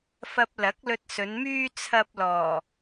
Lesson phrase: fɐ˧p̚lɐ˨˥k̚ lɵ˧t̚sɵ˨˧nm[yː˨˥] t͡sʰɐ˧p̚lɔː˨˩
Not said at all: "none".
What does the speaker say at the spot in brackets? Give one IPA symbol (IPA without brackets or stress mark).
yː˥